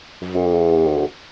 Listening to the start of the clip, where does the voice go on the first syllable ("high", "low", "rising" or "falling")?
low